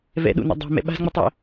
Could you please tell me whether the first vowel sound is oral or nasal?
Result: oral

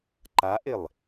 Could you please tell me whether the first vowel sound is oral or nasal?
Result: oral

